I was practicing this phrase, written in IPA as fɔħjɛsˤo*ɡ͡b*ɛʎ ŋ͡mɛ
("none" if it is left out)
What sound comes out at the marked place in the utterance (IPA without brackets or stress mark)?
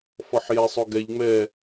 ɡ